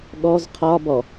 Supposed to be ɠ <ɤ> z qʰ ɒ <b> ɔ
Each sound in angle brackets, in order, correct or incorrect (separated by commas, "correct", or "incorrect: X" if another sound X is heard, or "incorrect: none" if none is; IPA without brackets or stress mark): incorrect: ɔ, correct